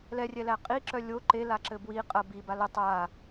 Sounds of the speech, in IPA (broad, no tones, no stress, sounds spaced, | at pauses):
l ɛ rʲ ɛ l æ qʼ i ǁ œ lʲ o ǃ e l a ǁ ɘ b w i qʼ ɐ b i b a l ə tˤ a